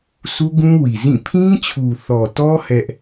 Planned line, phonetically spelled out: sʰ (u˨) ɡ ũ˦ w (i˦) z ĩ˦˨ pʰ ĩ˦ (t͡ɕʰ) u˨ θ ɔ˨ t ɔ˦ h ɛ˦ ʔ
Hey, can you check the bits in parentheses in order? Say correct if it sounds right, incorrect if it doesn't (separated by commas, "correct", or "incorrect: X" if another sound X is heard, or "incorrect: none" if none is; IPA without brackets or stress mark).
incorrect: u˦, incorrect: i˨, correct